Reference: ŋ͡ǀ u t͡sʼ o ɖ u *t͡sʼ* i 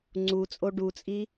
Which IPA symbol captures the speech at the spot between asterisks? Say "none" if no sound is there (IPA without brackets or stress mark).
t͡sʼ